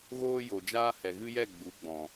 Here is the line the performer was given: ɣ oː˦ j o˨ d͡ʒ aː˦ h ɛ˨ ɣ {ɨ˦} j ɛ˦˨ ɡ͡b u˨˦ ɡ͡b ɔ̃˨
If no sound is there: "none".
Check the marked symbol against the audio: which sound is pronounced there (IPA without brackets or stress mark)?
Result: ɨ˦